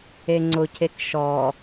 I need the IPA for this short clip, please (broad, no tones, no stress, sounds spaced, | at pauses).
e ŋ͡ǀ ʊ cʰ e k ʃ ɔ